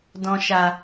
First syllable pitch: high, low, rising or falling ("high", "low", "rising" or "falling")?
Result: low